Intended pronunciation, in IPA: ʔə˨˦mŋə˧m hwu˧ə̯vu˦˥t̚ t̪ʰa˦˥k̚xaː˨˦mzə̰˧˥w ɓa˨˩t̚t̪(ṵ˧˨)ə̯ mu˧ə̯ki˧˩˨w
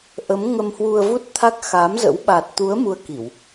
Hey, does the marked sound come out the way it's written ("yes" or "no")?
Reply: no